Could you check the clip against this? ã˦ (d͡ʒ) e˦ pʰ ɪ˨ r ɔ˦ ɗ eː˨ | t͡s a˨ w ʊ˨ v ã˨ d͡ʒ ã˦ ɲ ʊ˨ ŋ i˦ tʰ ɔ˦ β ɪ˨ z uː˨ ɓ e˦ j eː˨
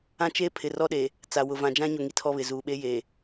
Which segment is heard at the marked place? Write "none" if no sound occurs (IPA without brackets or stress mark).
t͡ʃ